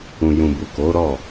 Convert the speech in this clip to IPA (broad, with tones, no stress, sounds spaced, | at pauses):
ũ˨ j ũ˨ b u˨ k o˨˦ ɾ ɔ˦˨